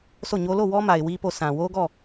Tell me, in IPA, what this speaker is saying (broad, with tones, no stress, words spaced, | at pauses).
sʰo˦˨ɲo˦ lo˦˨ wɔ˦ma˨ɪ̯ wi˦po˦˨ sʰã˨wo˦ɡɔ˦˨